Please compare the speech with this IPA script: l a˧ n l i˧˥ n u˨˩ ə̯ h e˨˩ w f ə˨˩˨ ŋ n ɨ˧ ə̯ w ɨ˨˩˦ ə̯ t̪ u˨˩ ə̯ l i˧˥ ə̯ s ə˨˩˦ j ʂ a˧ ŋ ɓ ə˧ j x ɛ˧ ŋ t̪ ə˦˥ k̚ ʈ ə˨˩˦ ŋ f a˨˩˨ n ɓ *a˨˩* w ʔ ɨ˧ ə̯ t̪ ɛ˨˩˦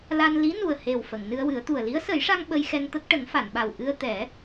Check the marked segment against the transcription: correct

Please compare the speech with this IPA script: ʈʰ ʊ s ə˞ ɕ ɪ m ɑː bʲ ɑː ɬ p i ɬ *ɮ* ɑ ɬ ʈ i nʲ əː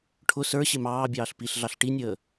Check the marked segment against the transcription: correct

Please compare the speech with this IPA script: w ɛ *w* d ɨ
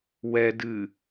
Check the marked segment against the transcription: incorrect: none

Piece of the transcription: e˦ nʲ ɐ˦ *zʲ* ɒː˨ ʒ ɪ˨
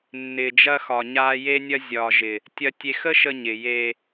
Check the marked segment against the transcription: correct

